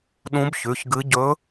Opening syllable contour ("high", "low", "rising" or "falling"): rising